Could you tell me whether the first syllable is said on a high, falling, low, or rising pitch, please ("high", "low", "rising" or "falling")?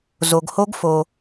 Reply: low